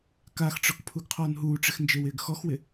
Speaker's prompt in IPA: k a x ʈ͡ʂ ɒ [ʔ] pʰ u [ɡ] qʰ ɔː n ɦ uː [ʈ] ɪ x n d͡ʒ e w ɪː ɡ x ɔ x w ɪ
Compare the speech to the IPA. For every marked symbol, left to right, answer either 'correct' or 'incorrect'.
incorrect, correct, incorrect

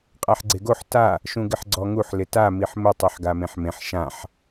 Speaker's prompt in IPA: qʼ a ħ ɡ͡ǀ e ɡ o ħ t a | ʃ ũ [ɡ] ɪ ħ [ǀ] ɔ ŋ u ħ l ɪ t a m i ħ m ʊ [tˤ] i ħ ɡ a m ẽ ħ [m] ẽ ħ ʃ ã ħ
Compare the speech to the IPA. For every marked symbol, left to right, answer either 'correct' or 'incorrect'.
correct, incorrect, correct, correct

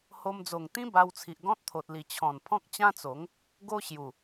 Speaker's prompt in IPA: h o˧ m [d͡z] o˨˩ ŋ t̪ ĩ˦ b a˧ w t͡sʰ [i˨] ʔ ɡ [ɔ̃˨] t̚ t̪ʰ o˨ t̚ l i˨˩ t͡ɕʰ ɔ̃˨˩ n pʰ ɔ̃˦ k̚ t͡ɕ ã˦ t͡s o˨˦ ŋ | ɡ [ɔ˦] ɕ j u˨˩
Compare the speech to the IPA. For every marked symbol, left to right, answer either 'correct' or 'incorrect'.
correct, correct, incorrect, incorrect

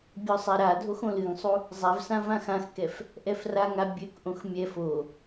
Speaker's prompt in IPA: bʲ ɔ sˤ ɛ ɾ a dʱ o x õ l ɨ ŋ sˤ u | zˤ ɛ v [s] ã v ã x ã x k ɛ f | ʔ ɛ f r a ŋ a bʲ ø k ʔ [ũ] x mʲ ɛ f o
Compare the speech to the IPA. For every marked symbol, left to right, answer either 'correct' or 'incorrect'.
correct, incorrect

